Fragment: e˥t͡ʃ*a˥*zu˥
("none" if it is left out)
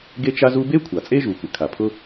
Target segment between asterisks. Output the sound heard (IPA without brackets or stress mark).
a˥